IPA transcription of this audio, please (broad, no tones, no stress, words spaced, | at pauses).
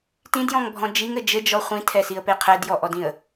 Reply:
tĩdjɔ̃ŋbʱɔ̃ d͡ʒiŋɘ d͡ʒɘd͡ʒɔ χʷĩtʰɛsiə̯pe qʰɛdjɔʔɔdĩə̯